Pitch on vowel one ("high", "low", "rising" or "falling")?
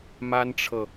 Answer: high